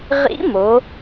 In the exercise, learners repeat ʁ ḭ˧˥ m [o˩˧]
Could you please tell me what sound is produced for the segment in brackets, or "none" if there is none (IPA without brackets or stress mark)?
o˩˧